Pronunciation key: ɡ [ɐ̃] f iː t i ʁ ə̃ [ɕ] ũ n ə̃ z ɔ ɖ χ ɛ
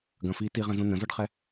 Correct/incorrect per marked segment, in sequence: correct, incorrect: z

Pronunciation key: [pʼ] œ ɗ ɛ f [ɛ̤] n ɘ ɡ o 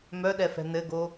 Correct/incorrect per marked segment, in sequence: incorrect: m, correct

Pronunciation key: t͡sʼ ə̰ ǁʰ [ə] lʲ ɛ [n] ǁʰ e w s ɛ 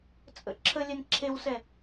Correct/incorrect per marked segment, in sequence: correct, correct

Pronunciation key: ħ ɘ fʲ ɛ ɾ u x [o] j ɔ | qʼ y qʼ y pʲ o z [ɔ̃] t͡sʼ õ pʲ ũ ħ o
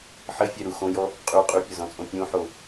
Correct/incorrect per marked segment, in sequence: incorrect: õ, correct

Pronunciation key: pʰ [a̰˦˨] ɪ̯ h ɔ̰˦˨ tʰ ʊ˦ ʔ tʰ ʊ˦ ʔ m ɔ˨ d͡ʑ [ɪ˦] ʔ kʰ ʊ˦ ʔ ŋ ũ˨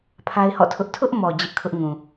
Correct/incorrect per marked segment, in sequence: incorrect: a˦, correct

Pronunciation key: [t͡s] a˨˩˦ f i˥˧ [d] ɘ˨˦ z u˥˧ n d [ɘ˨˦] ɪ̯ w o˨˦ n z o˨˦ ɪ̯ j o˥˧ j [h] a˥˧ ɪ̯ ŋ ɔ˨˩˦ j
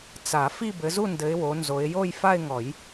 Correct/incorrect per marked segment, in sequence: correct, incorrect: b, correct, incorrect: f

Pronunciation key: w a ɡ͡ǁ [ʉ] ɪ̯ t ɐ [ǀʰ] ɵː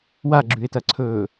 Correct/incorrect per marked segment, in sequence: correct, correct

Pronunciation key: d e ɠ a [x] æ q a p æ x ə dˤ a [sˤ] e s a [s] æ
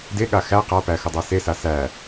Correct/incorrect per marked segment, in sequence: correct, incorrect: s, correct

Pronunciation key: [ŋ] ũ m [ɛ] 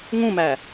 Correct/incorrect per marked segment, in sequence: correct, incorrect: æ

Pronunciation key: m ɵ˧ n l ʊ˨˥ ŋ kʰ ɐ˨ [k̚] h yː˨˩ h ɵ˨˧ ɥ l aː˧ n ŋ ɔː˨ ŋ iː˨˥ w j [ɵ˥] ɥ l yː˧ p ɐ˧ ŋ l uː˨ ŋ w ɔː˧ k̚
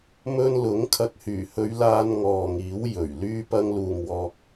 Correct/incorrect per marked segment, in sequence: correct, incorrect: ɵ˨˩

